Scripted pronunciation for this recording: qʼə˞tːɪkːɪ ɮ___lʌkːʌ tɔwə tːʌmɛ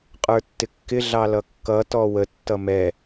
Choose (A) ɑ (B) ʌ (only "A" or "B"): A